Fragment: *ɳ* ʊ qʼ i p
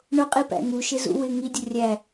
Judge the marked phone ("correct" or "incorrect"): correct